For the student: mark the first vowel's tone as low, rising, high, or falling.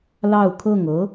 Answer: falling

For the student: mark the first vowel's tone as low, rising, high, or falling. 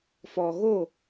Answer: low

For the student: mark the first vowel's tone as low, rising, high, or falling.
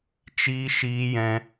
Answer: high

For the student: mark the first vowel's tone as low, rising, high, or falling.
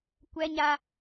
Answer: high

